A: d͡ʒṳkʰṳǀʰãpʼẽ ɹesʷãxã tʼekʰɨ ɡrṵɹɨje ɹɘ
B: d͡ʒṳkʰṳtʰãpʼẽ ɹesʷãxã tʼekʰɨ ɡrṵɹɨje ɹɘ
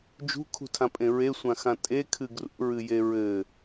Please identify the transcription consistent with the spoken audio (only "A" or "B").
B